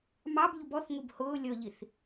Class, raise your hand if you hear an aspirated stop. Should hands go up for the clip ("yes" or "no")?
no